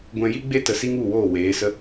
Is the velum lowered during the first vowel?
yes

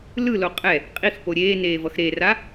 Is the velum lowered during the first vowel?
no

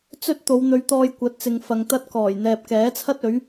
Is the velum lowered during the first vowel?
no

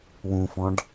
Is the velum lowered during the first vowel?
yes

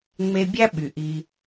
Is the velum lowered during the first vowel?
no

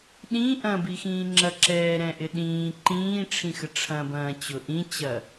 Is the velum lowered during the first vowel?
yes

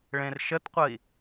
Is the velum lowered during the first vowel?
yes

